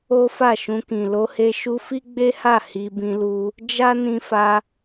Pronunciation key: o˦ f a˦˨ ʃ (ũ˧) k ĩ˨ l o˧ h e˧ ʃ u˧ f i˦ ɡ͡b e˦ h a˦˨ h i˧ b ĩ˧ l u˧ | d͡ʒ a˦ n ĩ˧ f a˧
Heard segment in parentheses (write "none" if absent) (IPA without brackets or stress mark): ũ˧